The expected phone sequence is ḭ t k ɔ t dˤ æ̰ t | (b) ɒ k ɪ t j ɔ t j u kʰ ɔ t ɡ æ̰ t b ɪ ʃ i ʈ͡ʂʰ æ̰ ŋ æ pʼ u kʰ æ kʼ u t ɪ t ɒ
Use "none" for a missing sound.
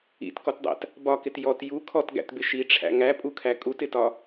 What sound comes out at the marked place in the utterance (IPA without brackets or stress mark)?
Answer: b